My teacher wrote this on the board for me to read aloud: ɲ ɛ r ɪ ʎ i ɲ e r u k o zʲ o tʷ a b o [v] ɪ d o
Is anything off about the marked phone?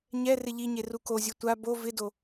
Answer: no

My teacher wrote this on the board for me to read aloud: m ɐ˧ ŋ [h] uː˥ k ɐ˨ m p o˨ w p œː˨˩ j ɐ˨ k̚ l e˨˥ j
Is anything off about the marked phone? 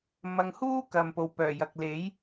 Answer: no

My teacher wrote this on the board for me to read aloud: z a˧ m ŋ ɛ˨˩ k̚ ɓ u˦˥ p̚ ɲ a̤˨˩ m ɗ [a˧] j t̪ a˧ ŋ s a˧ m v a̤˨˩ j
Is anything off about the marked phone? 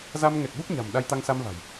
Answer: no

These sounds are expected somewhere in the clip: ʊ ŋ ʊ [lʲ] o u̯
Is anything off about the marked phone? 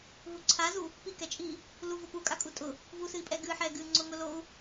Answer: yes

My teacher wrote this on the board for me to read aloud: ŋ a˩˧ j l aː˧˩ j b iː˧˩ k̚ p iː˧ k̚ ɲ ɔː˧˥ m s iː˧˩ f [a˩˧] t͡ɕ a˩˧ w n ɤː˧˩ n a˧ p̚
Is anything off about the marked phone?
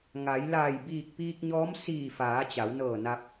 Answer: yes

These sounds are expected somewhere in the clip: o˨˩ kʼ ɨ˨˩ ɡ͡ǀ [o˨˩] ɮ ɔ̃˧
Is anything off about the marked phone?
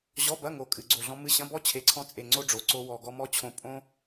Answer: no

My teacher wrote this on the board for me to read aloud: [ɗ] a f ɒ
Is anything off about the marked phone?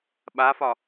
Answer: yes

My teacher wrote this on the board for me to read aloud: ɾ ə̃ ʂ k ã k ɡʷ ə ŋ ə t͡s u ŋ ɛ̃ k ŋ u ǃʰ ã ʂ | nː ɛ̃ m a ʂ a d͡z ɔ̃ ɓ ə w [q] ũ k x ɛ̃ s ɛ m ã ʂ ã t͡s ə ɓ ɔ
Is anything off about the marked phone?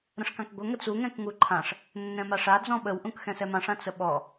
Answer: yes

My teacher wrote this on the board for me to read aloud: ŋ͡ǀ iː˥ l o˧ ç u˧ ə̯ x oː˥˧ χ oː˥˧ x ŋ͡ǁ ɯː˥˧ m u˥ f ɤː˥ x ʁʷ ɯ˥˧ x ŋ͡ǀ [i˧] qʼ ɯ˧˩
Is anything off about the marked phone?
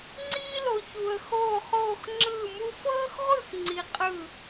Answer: no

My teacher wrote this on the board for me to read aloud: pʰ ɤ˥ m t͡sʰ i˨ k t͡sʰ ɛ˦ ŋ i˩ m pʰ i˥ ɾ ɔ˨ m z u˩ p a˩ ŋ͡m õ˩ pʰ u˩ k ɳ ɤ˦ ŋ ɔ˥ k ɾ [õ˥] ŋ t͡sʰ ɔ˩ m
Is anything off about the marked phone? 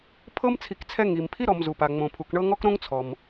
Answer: no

